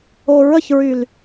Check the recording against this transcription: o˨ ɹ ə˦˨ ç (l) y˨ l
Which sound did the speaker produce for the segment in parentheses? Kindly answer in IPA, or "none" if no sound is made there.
ɹ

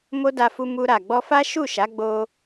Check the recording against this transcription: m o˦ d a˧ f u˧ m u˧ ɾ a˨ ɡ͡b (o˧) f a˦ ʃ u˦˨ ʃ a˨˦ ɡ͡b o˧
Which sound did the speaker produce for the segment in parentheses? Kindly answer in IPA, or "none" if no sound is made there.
ɔ˧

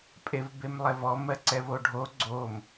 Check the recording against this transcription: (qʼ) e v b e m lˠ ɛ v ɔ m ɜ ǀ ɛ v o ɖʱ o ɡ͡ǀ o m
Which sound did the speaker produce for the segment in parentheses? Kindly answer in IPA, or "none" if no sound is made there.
pʼ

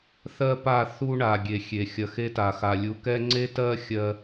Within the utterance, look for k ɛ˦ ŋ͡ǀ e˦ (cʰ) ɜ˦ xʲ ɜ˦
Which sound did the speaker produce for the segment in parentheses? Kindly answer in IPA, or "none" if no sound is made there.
t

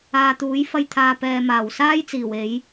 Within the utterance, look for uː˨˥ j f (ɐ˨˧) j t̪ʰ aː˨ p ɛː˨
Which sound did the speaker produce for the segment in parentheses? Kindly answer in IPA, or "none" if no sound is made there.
ɐ˧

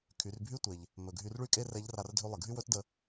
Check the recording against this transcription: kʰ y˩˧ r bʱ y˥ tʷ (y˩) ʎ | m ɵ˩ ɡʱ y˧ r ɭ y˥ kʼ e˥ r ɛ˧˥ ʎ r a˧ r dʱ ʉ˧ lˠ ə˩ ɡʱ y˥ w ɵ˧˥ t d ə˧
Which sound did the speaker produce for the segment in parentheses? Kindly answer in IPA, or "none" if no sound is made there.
e˩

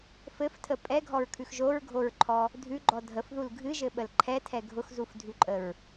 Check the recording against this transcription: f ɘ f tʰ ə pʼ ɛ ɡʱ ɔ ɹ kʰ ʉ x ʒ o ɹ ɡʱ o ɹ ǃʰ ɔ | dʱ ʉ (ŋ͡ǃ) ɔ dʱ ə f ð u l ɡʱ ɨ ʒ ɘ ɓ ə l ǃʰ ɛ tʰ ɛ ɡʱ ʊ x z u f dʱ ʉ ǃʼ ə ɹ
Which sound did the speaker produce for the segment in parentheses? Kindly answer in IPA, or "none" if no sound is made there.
ɡ͡ǃ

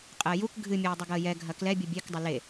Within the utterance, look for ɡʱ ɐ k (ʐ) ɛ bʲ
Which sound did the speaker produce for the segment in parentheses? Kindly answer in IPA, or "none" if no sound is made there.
l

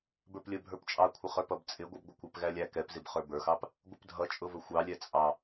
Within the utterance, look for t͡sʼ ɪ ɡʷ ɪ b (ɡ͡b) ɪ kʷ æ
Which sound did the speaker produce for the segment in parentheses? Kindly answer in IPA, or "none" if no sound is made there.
ɡʷ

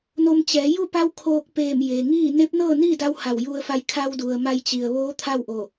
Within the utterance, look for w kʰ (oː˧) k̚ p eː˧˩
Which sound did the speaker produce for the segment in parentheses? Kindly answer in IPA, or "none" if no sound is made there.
oː˧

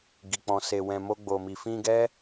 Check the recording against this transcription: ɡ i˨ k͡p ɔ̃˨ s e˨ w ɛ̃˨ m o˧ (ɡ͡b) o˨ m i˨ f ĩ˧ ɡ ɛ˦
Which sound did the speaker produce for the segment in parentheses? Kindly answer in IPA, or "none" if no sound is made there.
ɡ͡b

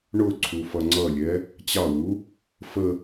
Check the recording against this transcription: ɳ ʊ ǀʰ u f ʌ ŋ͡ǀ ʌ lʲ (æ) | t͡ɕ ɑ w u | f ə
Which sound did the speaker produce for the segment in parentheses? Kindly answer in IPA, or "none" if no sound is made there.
ɛ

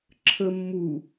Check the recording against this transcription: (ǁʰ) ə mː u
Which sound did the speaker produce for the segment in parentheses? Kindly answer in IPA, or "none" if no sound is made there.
ǁʰ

